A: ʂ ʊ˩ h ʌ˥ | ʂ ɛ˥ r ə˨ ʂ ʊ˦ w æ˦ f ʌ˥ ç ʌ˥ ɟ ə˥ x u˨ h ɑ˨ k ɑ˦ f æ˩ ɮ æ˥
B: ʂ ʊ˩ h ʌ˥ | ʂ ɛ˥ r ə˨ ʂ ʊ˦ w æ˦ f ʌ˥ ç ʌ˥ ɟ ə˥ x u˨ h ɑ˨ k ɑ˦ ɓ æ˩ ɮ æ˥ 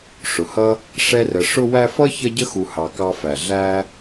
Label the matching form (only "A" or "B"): A